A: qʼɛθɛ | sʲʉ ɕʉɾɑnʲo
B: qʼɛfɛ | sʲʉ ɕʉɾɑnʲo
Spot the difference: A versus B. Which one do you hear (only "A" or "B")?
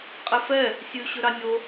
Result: B